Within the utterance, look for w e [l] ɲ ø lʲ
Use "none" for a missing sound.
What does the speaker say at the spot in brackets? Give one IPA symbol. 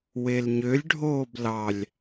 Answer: l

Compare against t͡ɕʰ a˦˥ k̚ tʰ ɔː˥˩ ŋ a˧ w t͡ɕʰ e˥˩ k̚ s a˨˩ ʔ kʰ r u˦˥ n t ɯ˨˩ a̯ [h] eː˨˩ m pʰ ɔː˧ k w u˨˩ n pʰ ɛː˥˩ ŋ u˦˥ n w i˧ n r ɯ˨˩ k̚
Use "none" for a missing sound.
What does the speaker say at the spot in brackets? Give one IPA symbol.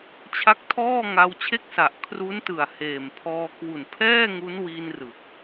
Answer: h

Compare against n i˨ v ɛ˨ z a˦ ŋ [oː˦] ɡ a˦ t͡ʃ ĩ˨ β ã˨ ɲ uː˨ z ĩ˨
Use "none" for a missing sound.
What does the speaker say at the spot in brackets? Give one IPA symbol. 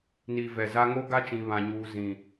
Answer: o˦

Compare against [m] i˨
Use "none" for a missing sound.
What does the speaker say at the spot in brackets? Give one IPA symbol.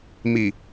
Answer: m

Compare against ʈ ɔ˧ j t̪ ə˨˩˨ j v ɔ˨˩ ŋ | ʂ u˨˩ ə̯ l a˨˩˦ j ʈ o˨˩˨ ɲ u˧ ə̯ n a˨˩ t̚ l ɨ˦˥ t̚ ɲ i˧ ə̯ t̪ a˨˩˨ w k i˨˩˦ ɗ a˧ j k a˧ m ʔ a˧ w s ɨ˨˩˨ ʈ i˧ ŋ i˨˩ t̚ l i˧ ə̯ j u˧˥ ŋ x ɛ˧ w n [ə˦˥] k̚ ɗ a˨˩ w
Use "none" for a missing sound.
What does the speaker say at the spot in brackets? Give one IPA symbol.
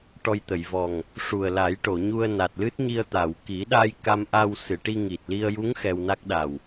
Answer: a˦˥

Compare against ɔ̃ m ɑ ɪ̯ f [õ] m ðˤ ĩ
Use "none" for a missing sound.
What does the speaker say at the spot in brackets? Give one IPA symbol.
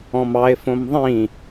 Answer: õ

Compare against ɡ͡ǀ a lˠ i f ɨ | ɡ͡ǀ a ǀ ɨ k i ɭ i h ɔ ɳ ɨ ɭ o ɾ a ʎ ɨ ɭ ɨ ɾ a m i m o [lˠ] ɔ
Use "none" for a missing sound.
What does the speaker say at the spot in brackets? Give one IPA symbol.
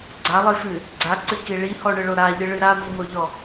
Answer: ʎ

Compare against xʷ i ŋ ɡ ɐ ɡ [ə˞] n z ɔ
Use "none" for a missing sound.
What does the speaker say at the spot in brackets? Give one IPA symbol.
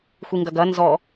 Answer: ɐ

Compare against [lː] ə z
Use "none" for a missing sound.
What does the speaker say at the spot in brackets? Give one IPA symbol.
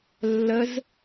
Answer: lː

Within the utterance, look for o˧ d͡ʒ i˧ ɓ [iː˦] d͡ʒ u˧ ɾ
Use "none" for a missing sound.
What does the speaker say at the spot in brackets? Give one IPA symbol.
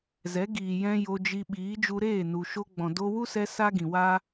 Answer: iː˨˦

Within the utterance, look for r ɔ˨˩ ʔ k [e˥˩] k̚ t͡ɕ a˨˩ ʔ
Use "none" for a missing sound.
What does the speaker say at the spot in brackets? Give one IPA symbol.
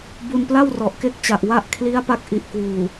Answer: e˥˩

